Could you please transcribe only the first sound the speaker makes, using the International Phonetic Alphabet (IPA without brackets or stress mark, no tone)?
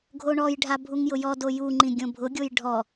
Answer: ɡʱ